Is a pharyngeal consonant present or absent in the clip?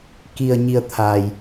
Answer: absent